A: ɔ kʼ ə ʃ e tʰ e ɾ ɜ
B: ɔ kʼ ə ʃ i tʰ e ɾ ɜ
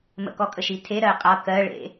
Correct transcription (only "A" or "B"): B